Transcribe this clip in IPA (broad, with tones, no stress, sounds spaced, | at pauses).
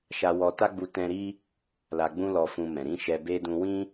ʃ a˧ w ɔ˧ t a˦ ɡ͡b u˧ t ɛ̃˧ ɾ i˦ | l a˧ ɡ͡b ũ˦ l ɔ˧ f ũ˧ m ɛ̃˨ ɾ ĩ˧ ʃ ɛ˧ b e˦ d ũ˧ w ĩ˦